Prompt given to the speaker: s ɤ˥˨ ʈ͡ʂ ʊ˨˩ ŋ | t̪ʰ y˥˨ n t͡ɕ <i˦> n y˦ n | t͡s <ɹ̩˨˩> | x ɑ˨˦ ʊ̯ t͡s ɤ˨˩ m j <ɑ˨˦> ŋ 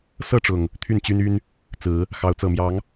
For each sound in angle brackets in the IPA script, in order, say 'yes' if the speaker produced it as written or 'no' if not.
no, no, yes

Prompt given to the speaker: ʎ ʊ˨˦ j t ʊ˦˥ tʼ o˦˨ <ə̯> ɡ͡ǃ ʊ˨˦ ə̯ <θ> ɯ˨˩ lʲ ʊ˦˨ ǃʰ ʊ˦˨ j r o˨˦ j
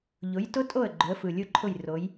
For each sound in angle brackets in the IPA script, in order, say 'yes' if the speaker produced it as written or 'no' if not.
yes, no

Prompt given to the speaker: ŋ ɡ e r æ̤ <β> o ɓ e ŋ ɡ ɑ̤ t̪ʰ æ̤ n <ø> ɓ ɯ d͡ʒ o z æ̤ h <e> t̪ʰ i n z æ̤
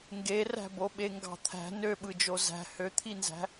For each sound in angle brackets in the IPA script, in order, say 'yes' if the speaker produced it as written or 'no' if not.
no, yes, no

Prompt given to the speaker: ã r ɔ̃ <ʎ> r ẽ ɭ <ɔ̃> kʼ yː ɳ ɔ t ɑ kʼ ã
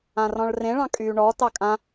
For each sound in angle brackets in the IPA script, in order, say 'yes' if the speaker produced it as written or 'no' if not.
no, no

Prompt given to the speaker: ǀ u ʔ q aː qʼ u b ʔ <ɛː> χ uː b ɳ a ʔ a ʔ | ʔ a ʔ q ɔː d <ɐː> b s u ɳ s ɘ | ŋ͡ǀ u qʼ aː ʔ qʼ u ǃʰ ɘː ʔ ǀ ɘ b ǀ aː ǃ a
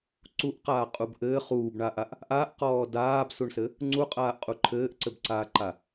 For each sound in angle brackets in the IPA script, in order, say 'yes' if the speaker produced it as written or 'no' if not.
no, no

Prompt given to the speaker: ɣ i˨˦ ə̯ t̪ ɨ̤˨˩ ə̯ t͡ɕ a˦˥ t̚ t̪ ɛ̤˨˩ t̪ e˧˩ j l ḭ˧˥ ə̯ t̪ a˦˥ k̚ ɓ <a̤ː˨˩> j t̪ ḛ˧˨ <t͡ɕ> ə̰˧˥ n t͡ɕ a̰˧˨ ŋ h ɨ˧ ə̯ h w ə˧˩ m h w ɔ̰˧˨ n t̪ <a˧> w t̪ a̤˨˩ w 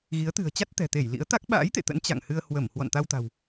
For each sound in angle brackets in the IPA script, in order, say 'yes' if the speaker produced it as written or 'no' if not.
no, no, yes

